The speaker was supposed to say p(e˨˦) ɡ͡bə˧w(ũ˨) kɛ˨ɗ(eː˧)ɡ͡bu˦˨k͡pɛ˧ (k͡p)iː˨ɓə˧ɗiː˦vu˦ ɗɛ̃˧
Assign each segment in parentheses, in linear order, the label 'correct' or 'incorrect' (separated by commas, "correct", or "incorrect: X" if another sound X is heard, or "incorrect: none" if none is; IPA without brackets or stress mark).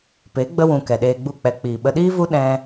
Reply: correct, correct, correct, correct